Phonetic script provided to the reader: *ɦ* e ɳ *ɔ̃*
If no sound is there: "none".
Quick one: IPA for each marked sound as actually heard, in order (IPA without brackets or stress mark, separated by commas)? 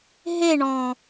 ɦ, ɔ̃